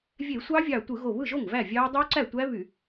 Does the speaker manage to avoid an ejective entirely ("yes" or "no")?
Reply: yes